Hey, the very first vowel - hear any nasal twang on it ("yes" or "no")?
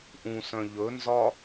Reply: yes